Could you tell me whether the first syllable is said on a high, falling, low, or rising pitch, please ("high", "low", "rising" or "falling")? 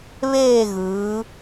falling